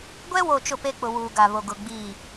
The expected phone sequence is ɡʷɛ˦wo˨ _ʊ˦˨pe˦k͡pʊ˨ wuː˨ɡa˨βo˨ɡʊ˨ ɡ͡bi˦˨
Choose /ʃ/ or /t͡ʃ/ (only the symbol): t͡ʃ